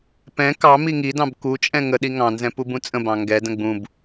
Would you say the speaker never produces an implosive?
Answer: no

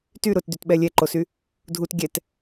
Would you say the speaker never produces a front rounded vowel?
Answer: no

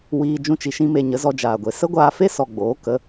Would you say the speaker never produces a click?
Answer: yes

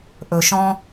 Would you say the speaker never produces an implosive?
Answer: yes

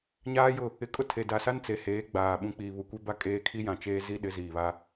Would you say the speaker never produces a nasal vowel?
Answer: no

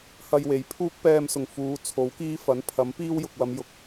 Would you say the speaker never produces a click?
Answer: yes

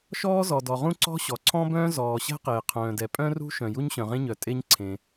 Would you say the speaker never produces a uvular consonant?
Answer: no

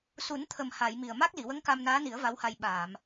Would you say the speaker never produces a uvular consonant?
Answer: yes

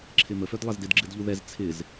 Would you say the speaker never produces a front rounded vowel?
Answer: no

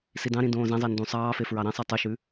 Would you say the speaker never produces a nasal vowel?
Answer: no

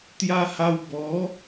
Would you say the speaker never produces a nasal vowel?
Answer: yes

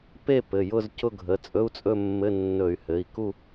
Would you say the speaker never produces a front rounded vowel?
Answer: no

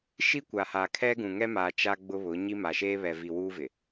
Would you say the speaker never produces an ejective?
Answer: yes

